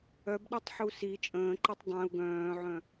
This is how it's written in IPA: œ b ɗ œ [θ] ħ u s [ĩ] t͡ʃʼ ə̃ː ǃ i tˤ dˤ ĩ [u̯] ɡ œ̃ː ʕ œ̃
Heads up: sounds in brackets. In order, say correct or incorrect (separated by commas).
incorrect, incorrect, correct